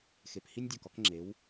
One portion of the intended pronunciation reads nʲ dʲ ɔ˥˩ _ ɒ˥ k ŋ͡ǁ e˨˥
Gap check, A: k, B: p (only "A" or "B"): A